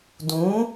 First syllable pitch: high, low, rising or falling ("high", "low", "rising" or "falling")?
rising